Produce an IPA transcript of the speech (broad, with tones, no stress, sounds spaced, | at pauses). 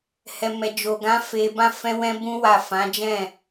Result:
h ɛ˨ m ɛ˨ d͡ʒ o˨ ɡ ã˨˦ f e˧ b ã˦ f ɛ̃˦ w ɛ̃˦ b ũ˦ w a˦˨ f ã˨˦ d͡ʒ ɛ̃˦˨